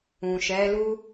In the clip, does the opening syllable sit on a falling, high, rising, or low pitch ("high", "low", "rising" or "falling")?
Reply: low